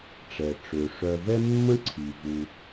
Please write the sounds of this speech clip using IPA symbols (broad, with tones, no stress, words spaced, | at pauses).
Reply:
ʈ͡ʂɛ˩ʈ͡ʂø˩ ʂœ˨vɛ˥mːə̃˥ ǀʰi˩vu˨